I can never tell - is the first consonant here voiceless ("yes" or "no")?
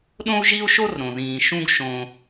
no